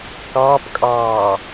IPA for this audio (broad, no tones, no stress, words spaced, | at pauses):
kɑːpkʼɑː